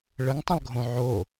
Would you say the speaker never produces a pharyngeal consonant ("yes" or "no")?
no